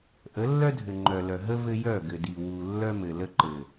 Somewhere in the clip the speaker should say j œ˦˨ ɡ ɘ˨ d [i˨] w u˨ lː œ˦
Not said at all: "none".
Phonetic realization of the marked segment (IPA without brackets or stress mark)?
i˨